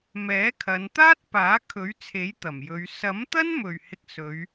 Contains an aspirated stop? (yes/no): yes